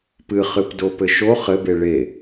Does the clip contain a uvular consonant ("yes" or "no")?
yes